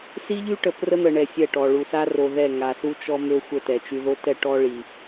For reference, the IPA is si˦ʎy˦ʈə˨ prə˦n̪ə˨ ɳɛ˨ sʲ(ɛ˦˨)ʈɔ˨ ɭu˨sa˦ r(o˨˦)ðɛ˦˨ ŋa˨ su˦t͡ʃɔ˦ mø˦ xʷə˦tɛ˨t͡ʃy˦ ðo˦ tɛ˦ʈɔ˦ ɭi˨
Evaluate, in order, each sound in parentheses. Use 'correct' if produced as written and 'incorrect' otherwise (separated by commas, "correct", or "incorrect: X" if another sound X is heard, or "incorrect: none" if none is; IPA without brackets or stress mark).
correct, incorrect: o˨